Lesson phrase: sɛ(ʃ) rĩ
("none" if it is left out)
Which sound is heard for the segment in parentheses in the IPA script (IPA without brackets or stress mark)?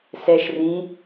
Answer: ʃ